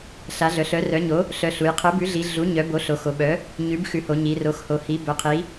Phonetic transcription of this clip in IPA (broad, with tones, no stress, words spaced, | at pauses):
ɬa˩˥ɮœ˩˧ɬ œ˩˥rœ˩˥ɲo˩˥ | ɬœ˩˥ɬu˩˧j qʰœ˩˥bʉ˩˥ɮi˩˧ ɮu˩˥ ɲœ˩˥ bo˩˥ ɬo˩˧xo˩˧ɓœ˩˥ | ɲʉ˩˥bxʉ˩˥ho˩˧ ɲi˩˧ro˩˥x ho˩˧hi˩˥ bœ˩˧qʰi˩˧